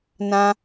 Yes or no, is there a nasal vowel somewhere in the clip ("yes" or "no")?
yes